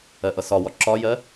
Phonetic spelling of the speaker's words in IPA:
ɜ ʔ ʌ s ɒ w ɒ ǁ ɒ j ɜ

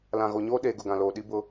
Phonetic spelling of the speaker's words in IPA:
l ã˨ ɣ o˨ ɲ oː˦ ɗ eː˨ ɡ ʊ˨ ɡ ã˨ l oː˨ ɗ i˦ b ʊ˦

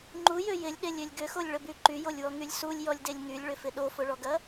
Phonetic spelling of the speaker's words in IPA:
ŋ͡ǃ u j ø j ɪ lʲ ɗ e lʲ ø lʲ ɡ ʏ x o lʲ ɭ ə b y ǃ y j o lʲ w ɔ ŋ y lʲ s u lʲ j ɔ lʲ d e lʲ ŋ y lʲ ɭ ʏ f ɪ ɗ o f ʊ ɭ ɔ ɡ ɐ

